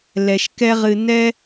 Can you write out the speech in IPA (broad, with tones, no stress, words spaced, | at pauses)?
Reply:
lɛ˨ʃkɛ˦ʁɨ˧ nɛ˦